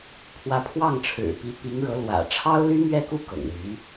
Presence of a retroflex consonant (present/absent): present